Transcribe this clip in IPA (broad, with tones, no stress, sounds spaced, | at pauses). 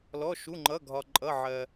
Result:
l ɔ˩˧˩ ʃ u˩˧˩ ŋ͡ǃ ʌ˩˧˩ ɡʱ ɒ˩ ǃʼ ʌ˩˧˩ ʕ ɜ˩